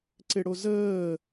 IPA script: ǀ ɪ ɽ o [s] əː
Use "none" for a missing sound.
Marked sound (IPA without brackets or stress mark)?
z